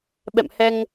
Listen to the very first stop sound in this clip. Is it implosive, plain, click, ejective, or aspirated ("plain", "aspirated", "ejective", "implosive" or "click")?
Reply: implosive